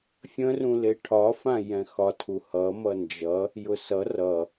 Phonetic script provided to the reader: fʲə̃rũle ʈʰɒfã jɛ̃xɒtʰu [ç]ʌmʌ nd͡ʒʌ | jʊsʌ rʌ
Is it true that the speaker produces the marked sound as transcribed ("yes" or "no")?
no